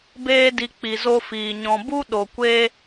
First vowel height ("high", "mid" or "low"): mid